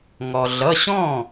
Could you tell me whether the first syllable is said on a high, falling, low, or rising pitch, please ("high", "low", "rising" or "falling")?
low